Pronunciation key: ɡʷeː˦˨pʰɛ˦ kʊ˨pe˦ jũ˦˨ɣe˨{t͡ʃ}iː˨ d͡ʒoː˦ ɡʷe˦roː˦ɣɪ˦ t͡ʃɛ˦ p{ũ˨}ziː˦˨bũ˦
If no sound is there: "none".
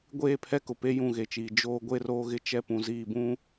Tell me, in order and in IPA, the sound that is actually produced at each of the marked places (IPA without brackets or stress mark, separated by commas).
t͡ʃ, ũ˨